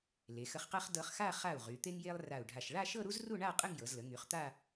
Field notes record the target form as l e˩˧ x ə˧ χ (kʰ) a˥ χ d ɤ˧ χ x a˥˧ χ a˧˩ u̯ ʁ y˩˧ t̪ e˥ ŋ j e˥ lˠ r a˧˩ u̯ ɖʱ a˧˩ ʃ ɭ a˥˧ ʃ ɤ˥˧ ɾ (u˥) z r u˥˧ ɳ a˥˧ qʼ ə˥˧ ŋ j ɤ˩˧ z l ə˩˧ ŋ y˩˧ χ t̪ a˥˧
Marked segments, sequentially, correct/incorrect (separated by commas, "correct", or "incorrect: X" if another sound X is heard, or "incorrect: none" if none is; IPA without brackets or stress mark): incorrect: q, correct